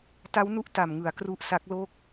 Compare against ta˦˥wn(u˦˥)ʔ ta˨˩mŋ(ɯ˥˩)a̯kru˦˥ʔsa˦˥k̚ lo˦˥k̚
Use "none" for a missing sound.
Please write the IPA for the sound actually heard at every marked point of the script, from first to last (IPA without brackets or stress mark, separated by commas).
u˦˥, ɯ˩˦